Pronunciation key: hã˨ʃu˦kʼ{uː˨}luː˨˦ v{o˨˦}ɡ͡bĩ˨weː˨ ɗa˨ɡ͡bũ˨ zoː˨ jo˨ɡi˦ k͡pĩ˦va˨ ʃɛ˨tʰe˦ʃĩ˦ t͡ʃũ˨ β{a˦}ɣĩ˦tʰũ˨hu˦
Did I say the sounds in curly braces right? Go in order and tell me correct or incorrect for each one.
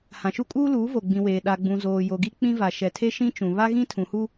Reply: incorrect: uː˦, incorrect: o˨, correct

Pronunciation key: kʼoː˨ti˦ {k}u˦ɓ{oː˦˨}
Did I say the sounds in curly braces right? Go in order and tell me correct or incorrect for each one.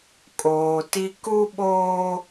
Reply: correct, incorrect: oː˦

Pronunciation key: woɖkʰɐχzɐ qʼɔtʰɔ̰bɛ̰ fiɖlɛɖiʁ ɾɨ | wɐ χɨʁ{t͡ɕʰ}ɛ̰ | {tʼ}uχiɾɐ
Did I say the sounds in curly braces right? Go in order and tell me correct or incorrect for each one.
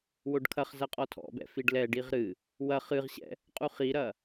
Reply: incorrect: ɕ, incorrect: qʼ

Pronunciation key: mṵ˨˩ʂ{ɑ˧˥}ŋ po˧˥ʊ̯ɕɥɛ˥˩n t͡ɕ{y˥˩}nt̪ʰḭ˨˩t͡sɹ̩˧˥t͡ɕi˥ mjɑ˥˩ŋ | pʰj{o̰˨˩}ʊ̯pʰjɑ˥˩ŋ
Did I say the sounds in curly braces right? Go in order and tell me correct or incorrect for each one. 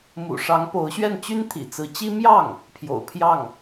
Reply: correct, incorrect: y˥, correct

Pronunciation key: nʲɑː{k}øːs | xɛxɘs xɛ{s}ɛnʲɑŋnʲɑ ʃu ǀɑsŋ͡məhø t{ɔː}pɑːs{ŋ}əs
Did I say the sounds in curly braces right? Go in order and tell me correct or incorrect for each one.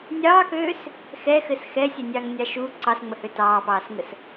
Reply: correct, incorrect: sʲ, incorrect: ɑː, correct

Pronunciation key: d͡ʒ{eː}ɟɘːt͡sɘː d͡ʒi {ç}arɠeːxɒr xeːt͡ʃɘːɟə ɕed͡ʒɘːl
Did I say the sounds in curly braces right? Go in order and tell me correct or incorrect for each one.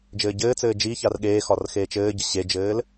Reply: incorrect: ɘː, correct

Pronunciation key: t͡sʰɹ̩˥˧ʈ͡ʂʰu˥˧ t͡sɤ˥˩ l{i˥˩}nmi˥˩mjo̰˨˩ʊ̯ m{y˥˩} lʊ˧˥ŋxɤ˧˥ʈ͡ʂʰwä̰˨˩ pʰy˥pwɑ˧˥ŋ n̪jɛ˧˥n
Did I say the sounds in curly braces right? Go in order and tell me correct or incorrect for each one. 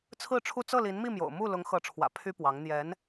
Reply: incorrect: i˧˥, incorrect: u˥˩

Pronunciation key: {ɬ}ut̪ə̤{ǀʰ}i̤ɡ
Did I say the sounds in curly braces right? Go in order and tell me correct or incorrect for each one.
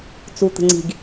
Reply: incorrect: t͡s, incorrect: ŋ͡ǀ

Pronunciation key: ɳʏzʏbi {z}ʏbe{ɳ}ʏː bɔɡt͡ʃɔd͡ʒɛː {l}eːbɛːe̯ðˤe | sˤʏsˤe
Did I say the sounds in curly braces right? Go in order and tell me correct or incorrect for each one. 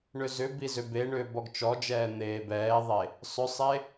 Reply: correct, correct, incorrect: n̪

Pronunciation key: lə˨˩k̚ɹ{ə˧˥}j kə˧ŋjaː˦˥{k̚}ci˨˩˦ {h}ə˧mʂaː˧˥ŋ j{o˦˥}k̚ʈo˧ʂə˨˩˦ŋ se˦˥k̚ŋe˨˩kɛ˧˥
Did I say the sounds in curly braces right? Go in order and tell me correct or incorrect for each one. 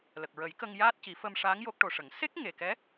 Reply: incorrect: ə˨˩˦, incorrect: t̚, incorrect: f, correct

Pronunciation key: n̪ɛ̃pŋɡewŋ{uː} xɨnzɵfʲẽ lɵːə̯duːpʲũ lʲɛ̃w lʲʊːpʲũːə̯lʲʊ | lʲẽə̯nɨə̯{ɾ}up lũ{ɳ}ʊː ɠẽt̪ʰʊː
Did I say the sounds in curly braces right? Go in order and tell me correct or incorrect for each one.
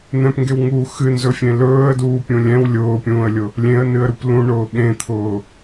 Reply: correct, correct, correct

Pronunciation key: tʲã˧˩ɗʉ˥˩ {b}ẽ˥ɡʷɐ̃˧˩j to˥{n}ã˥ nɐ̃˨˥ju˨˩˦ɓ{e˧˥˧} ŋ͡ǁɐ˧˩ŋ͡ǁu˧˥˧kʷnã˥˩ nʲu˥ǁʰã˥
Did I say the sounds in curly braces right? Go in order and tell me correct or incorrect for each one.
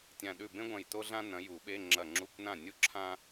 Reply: correct, incorrect: ɮ, correct

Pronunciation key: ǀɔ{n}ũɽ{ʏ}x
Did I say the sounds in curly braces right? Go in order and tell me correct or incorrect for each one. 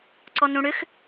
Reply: correct, correct

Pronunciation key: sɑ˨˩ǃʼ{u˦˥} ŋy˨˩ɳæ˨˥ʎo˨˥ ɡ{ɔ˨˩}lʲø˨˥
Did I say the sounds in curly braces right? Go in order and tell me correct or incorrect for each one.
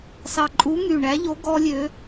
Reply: incorrect: u˨˥, incorrect: ɔ˦˥

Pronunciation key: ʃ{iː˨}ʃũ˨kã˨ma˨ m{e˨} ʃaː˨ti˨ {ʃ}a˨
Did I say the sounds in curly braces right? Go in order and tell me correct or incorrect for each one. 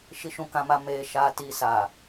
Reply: incorrect: i˨, incorrect: eː˨, incorrect: s

